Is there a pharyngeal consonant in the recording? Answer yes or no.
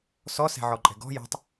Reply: yes